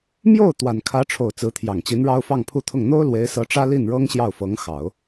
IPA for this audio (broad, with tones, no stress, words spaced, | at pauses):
mjo˥˩ʊ̯ t̪wa˨˩nkʰä˧˥ʈ͡ʂʰo˨˩ʊ̯ t͡sɹ̩˧˥t̪ʰjɑ˨˩ŋt͡ɕi˧˥nɻɑ˥ʊ̯ fɑ˥˧ŋpʰu˥˧t̪ʰʊ˥˩ŋ n̪o˥ʊ̯ lwe˧˥ɪ̯sɤ˧˥ʈ͡ʂä˥ li˥˩nɻɤ˥ŋ ɕjɑ˥˩ʊ̯fɤ˧˥ŋxɑ˨˩˦ʊ̯